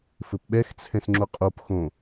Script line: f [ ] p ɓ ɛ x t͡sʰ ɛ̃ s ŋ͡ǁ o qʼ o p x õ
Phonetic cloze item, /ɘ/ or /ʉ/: ɘ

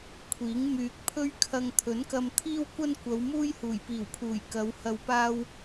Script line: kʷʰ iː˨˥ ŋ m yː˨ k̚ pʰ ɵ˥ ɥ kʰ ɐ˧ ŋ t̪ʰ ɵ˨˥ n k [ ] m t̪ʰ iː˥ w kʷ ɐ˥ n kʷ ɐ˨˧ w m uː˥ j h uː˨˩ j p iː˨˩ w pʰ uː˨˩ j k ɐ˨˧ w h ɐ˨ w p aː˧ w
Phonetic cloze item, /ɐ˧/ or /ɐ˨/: ɐ˧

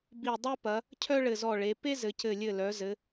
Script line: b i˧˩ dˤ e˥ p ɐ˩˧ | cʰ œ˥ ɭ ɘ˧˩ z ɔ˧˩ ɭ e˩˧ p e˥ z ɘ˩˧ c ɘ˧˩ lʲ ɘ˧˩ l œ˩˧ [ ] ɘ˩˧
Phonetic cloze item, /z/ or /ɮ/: z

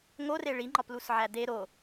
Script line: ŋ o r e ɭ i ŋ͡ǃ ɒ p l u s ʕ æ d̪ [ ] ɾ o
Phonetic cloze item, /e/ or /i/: e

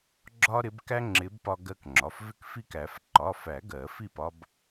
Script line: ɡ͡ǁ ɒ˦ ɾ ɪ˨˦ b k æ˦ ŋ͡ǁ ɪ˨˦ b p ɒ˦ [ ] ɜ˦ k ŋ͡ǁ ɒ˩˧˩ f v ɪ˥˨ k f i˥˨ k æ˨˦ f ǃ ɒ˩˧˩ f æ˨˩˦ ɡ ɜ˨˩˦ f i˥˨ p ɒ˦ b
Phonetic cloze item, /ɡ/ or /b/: ɡ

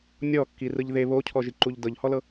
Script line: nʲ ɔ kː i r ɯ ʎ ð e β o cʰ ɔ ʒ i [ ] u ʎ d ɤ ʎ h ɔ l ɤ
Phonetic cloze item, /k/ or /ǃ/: ǃ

